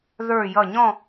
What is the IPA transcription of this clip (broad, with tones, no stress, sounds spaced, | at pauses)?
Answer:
ð ə˞˧˩ j ʌ˧˩ ɲ ɔ̃˥˧